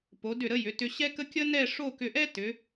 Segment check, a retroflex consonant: present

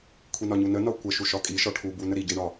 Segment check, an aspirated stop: present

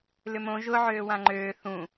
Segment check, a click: present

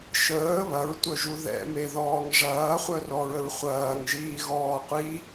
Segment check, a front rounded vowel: present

